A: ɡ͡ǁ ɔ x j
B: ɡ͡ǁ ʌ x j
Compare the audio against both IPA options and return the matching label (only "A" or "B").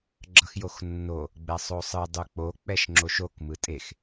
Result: B